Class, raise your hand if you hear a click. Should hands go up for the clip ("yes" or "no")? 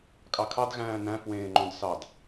yes